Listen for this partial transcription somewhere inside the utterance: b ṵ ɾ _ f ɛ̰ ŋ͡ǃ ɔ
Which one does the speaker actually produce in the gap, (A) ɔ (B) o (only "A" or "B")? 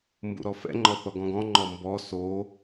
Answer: A